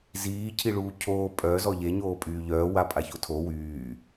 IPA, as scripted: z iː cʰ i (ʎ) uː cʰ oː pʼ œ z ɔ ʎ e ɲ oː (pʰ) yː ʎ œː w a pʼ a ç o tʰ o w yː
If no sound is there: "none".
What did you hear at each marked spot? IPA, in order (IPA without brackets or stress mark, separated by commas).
ɭ, pʼ